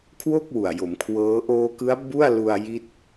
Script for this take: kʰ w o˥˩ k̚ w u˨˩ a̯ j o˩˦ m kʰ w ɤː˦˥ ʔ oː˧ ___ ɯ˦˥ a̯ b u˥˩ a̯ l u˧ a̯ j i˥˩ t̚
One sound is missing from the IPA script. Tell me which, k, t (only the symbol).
k